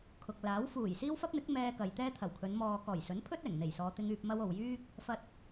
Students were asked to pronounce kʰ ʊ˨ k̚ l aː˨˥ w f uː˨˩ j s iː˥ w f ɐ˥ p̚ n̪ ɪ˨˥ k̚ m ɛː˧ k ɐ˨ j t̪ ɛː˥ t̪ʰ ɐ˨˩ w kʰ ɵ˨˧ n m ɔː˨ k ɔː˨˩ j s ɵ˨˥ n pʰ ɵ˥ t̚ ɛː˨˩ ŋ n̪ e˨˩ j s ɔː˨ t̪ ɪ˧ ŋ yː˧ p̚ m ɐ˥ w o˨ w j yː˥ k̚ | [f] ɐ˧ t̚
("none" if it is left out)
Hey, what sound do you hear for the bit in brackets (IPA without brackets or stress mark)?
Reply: f